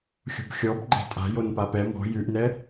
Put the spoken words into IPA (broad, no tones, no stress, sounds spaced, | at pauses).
xʲ o̤ b xʲ ɔ b ɡ͡ǃ ɛ̤ tʼ a̤ j o n p a p ɛ m ɔ̤ j ʉ ʔ n ɛ